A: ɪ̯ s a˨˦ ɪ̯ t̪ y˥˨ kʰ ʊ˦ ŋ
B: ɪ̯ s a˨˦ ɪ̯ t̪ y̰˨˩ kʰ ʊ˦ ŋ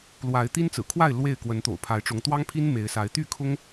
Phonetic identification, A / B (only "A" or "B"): A